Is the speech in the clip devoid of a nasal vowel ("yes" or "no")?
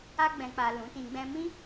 no